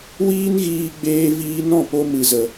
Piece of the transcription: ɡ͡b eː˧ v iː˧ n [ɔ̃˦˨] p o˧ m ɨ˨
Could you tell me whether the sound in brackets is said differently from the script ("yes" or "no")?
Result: no